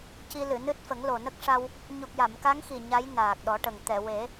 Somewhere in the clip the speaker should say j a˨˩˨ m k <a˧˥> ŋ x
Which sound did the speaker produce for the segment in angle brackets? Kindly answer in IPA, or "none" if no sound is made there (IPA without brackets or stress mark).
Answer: a˧˥